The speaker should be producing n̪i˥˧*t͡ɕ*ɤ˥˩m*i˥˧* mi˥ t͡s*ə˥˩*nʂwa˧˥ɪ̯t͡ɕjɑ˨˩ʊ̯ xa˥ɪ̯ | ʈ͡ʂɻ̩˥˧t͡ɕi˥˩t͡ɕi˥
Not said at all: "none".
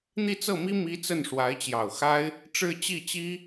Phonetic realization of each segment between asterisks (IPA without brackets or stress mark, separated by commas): t͡s, i˥, ə˥˩